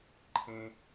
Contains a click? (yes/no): yes